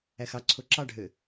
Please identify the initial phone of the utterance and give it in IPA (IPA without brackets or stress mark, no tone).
æ